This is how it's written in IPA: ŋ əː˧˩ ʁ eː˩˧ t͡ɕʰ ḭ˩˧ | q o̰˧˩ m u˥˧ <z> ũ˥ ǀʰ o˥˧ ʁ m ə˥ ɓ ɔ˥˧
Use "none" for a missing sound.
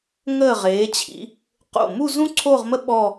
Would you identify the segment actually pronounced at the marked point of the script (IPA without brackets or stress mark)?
z